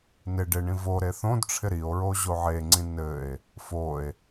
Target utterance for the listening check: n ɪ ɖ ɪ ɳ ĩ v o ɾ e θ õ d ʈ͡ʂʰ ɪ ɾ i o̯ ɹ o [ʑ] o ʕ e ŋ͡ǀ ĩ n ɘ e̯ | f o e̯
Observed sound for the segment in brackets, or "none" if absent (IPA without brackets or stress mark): ʑ